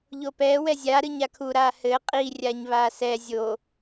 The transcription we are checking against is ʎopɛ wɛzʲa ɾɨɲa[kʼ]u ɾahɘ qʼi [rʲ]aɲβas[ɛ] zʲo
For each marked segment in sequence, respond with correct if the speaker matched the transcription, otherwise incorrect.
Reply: incorrect, correct, correct

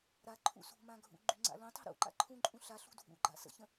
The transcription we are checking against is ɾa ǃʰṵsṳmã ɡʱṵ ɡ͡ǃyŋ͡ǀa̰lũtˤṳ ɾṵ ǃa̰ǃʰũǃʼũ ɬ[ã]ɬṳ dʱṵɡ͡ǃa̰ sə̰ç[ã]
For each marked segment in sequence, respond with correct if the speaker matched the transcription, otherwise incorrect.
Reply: incorrect, incorrect

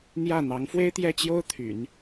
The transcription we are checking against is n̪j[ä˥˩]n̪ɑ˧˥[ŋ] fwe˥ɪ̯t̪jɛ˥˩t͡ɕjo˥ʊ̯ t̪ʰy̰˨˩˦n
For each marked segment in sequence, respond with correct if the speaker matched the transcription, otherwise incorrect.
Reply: correct, correct

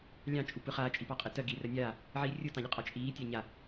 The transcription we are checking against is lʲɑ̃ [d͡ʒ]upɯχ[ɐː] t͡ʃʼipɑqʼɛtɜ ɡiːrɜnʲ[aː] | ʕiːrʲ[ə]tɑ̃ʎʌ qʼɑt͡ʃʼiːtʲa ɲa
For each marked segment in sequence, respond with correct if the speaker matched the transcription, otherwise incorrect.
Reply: incorrect, incorrect, correct, incorrect

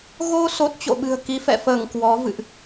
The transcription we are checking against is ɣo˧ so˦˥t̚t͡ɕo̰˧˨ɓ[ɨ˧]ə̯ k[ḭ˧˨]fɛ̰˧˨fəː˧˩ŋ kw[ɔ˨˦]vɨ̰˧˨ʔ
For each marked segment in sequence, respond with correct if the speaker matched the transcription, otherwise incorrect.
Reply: incorrect, incorrect, correct

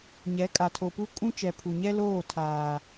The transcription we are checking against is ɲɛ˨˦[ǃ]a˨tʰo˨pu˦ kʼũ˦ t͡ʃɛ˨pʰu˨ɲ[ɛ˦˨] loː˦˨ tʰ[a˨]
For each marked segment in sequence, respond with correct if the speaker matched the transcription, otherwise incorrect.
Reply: incorrect, incorrect, incorrect

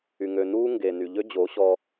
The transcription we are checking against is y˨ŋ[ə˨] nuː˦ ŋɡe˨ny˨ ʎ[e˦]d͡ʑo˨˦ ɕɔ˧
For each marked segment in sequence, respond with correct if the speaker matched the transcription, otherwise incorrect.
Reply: incorrect, incorrect

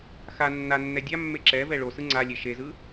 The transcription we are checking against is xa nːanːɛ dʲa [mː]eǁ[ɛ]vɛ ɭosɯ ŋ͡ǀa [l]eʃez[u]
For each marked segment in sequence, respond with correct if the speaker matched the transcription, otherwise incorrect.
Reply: correct, correct, incorrect, incorrect

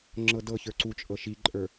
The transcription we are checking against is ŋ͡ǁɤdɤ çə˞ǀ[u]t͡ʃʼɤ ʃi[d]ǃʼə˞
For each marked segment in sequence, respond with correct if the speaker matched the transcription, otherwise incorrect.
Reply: correct, incorrect

